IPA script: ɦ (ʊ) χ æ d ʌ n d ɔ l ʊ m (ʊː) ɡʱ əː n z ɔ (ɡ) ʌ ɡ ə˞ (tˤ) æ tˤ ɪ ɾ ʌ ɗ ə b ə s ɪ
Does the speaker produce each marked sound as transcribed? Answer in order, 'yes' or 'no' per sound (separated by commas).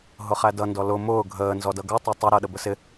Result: yes, yes, no, yes